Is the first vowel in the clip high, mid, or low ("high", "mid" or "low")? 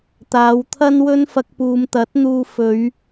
low